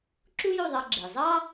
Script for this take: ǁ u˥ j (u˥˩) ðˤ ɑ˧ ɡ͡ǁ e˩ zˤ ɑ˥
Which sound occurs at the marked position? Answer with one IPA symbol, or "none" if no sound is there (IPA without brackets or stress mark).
u˥˩